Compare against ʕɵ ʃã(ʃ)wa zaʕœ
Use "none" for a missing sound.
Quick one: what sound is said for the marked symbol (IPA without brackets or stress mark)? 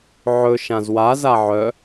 z